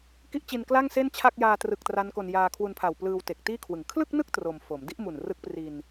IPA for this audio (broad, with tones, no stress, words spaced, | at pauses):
ki˦˥ʔt͡ɕi˧n kla˥˩ŋse˥˩nt͡ɕʰa˥˩k̚ jaː˧ trɯ˨˩k̚ tra˦˥nko˧n jaː˧kʰwu˧npʰa˨˩wplɯː˧w te˨˩k̚tiː˥˩kʰwɯ˨˩ŋ kʰlɯ˥˩k̚nɯ˥˩k̚ tro˧mfo˩˦m di˦˥ʔmu˨˩n rɯ˦˥k̚pri˧n